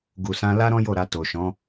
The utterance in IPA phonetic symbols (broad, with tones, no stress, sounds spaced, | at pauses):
ɡ u˨ s ã˧ l a˦ ɾ ɔ̃˦ j o˦˨ ɾ a˧ t o˨ ʃ ɔ̃˨˦